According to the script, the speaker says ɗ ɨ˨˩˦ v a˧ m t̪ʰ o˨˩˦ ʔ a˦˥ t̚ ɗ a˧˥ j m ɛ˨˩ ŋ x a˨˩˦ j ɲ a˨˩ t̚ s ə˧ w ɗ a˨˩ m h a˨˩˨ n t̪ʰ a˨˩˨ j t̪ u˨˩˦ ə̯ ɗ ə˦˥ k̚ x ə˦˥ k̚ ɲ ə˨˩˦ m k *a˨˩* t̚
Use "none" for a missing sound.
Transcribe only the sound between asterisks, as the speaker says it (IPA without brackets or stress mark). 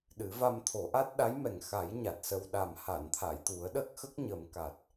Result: a˨˩